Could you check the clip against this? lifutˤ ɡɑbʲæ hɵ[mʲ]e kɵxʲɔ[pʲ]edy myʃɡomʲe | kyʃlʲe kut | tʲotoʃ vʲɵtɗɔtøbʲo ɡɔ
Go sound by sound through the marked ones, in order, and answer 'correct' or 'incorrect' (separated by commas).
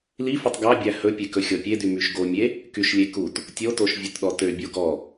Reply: incorrect, correct